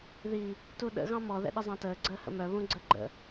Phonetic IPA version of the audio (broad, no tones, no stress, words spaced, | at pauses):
ði | tuɗə̰ ɣɑ̃mɔ ðɛ̰ɗəzˤɑ̃təː ɡ͡ǀəːhə̰mœ βũɡ͡ǀəɡ͡ǃə̰